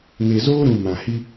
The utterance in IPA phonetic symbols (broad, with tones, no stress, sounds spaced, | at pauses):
ŋ e˨ z oː˦ ɾ ũ˨ m ã˨ h i˦